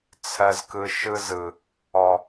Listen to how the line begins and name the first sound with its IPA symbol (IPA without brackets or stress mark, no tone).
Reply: t͡sʰ